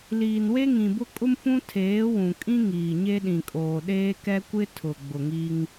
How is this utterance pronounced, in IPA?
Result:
liː˨nwe˦ŋĩ˨bʊ˦ kʼʊ˦mfũ˦ tʰeː˨˦wũ˨kʼĩ˦ ŋiː˨ɲe˦ɗĩ˨kʼoː˨ ɗeː˦kɛ˦ kʷɪ˦tʰʊ˨ ɡ͡bʊ˨ŋi˦ŋ

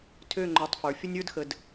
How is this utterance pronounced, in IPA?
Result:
tʰø˦˨ ŋ͡ǃø˨tˤ fə˞˨ fʲə˦nʲ ə˞˦dxə˨d

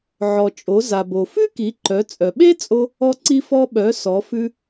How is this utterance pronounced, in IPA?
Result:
ʕɔ˩t͡ʃʼo˩˧ za˩bo˩ fʉ˥ki˩˧ǃœ˩˧ t͡sʼœ˩ɓe˥t͡sʼo˧ | ɔ˧ǀi˧fɔ˧ ɓœ˩˧ sɔ˩˧fʉ˧

